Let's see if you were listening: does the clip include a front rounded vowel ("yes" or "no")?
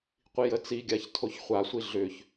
yes